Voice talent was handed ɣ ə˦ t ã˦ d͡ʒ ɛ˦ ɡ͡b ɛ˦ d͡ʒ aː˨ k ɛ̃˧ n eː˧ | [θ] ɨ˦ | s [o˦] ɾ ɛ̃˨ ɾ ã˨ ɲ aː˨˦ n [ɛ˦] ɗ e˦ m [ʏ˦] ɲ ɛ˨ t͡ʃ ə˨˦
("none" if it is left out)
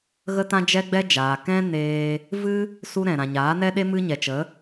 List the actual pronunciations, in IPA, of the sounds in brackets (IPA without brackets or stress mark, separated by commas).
v, u˦, ɛ˦, ɨ˦